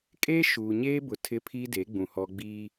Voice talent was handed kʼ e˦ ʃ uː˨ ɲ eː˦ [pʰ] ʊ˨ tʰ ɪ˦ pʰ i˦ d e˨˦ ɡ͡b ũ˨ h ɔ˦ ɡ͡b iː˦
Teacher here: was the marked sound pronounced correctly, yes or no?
no